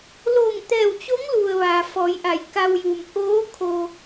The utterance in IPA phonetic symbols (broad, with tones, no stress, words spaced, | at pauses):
loː˧˩ŋt̪ɛː˧˩wt͡ɕo˧˥ŋlu˩ə̯ ʋaː˩fɔː˩˧jʔa˩˧j ka˧wju˩m ʔoː˧˥ kʰo˧